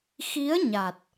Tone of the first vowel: rising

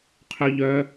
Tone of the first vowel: high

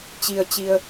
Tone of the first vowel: low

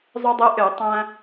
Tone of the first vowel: high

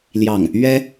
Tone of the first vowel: falling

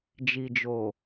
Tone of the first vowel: low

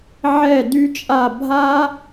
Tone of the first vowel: falling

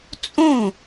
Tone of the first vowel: falling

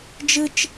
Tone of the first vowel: high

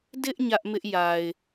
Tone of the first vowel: high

